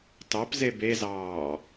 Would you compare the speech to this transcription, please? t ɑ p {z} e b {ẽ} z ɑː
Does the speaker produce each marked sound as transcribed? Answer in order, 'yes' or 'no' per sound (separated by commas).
yes, no